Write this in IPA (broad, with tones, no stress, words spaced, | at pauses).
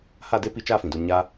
ha˦˨de˦pi˧t͡ʃaː˦˨ fĩ˨do˧ ɲa˦